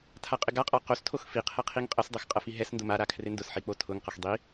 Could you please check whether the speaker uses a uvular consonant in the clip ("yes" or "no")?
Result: yes